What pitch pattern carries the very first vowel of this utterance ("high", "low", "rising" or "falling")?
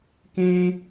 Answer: high